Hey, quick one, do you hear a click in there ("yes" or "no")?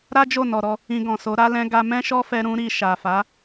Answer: no